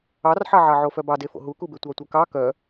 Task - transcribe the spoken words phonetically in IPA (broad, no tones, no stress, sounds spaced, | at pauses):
ɑ r ħ ɑ ʕ ɑ ʕ o f œ b ɑ d e f o̰ ɦ u k u b e tʷ ɑ tʷ œ k ɑ k œ